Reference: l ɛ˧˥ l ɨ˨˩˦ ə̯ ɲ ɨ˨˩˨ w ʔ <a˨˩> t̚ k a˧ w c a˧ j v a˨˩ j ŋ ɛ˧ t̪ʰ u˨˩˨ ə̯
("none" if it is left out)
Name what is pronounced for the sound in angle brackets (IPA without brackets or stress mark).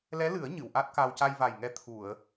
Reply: a˦˥